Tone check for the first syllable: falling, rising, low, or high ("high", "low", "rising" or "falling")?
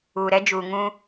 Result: low